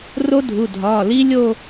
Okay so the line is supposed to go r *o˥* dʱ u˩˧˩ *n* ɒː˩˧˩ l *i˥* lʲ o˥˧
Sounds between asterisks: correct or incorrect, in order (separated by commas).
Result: correct, incorrect, correct